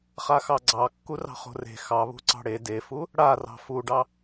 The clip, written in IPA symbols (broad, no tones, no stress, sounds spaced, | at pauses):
χ a x ɑ ɡ͡ǀ ɑ kː u r ɑ̤ χ o̤ r e̤ x ɑ β ṳ ǀ ɑ̤ ɽ e d e f u | ɽ a r ɑ̤ f u ɖ ɑ